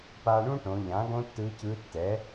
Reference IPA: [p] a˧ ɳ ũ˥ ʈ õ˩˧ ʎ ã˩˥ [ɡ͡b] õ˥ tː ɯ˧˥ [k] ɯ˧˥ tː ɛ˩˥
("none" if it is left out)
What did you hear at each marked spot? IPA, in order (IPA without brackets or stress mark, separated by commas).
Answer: p, ɡ, c